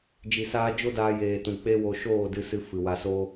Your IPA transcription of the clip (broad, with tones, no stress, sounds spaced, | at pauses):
d͡ʒ i˨ s aː˧ d͡ʒ o˦ d aː˧ j eː˨ t ũ˨ k͡p e˦ w o˧ ʃ oː˦˨ d ɨ˧ s ɨ˧ f ɨ˨ w a˧ s o˦